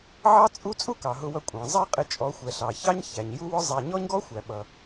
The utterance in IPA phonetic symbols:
ʕ ɑ˦ t͡sʼ u˦ t͡sʼ u˦ k ɑ˨ ɦ ʊ˧ w ʌ˧ kʷʼ ɑ̃˨ zˤ æ˦ qʼ ɪ˧ t͡ʃʼ ɔ˨˦ xʷ ɛ˨ ɬ ɑ˨ ç ɑ˦ ɲ ç æ˨ ɲ j u˦ w ʊ˦ zˤ æ˧ ɲ ɔ˦ ɲ ɡ ɔ˦ xʷ æ˨ ɓ ʌ˧

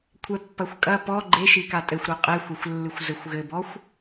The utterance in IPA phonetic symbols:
kʷʰ ɛ pː ɐ xʷ kʼ ɐ p ɔ ɡ͡ǃ e ʃ i k a tʼ ɘ xʷ ɾ ɔ qʼ ɛ xʷ ɛ xʷ lː ɨ xʷ z ɘ xʷ ɣ ɘ b ɔ xʷ

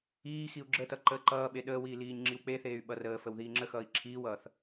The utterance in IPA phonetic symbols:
iː x i u̯ ɡ͡ǁ ə t ʌ ǃ əː ǃ ʌː ɓ e ɗ əː w iː l iː ɲ ŋ͡ǁ i w k͡p e θ eː y̯ ɓ ʌ r əː f ə w ð iː ŋ͡ǁ ə x ʌː i̯ ǁʰ iː w ʌː θ

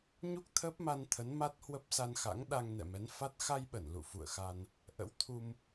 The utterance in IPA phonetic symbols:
ɲ u˦˥ k̚ t̪ʰ əː˦˥ p̚ m a˧ n t̪ʰ ə˨˦ n m a˦˥ t̚ h w ə˦˥ p̚ s a˧ n x a̰˧˥ ŋ ɗ a˧ ŋ n ɛ̰˧˨ m ɛ˨˦ n f a˦˥ t̚ x a˧ j ɓ ə˧˩ n l ṵ˧˨ f ṵ˧˨ ə̯ x a˧ n | ʔ ə̰˧˥ w t̪ʰ u˧ m

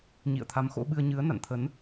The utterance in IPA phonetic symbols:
ɲ ḭ˧˨ ə̯ t̪ʰ a˨˦ m x o̰˧˥ ɓ ɨ˧ ə̯ ɲ ɨ˨˦ ə̯ n a̰˧˨ n t̪ʰ ə˨˦ n

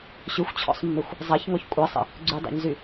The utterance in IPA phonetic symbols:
ɕ ʉ xʷ t͡ɕʰ ɔ̰ sˤ mː e xʷ | zˤ a ç ŋ ɔ ç kʷʼ a sˤ ə̰ | ɡ͡ǀ ʉ dˤ a̰ ɲ z y

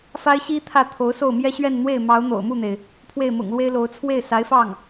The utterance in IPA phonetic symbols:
f a˥ ɪ̯ ɕ i˥ t̪ʰ ä˥˩ t̪ʰ o˧˥ ʊ̯ s o˥˩ ʊ̯ m j ɛ˥ ɕ ɥ ɛ˥˧ n n̪ w e˥˩ ɪ̯ m ɑ˧˥ ʊ̯ n̪ o̰˨˩ ʊ̯ m u˥˩ n̪ e˩ ɪ̯ | pʰ w e˥˩ ɪ̯ m ʊ̰˨˩ ŋ l w e˥ ɪ̯ l o˧˥ ʊ̯ t͡sʰ w e˥˩ ɪ̯ s a˧˥ ɪ̯ f ɑ˥˩ ŋ

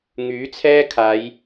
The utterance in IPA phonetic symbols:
ŋ yː˨˥ t͡sʰ ɛː˥ kʰ aː˨˧ j

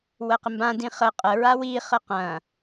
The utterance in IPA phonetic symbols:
w ə q ɪ m b ã d ĩ χ ə qʼ ə ɹ a w i χ ə q ɐ̃

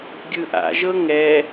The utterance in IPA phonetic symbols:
ɡʲ ɯ ʔ a̰ ʒ ɤ ŋ ɛ

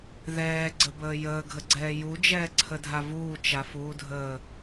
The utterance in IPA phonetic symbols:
ð ɛː ɡ͡ǀ ə b əː j əː ɡʱ ə ɡ͡ǀ ɛː j u d͡ʒ ɛː ǀʰ ə dʱ a v uː t͡ʃ a f uː dʱ əː

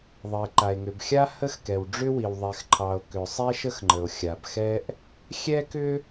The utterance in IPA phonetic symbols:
ðˤ ə˩ e̯ ǃ a˩ e̯ ŋ ʏ˩ b xʲ a˥ h ə˥ x k ɛ˩ w ɖ͡ʐ ʏ˥ w i˩ w ðˤ ɛ˩ x ǃʰ ɑ˩ o̯ k ʏ˩ sˤ ɛ˥ ʃ ə˥ x ŋ͡ǃ ə˩ o̯ xʲ a˩ b x ɛ˥ ʔ | xʲ ɛ˥ k ʏ˥

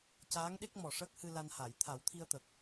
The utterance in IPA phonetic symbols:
c aː˧˥ ŋ ɗ e˦˥ k̚ m ɔ˨˩ ʂ əː˦˥ k̚ h ɨ˧ l a˧ n h a˨˩˨ j t̪ʰ a˨˩˦ w t̪ʰ i˧ ə̯ t̪ ə˨˩ k̚

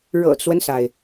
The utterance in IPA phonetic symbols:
ɻ ɤ̰˨˩ t͡s w ə˦ n s a˩ ɪ̯

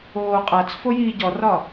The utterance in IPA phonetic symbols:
oː qʼ a t͡s f o j iː ɟ ɔ r ɒ

